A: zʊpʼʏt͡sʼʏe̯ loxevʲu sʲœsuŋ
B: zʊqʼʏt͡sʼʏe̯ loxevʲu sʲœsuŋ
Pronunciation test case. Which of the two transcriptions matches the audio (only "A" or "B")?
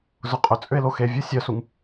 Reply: B